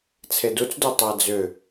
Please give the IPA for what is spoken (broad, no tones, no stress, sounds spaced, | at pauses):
t͡sʰ e d u t͡s d o tˤ a d͡z ʏ